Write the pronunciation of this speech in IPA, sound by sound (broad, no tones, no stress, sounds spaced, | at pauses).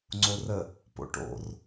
ŋ͡ǀ o r ə | p o̰ ʈ o̰ r